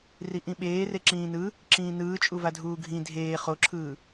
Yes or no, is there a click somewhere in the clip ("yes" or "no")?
yes